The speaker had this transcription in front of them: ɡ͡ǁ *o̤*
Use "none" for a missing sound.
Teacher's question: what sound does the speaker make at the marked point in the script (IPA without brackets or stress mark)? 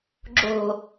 o̤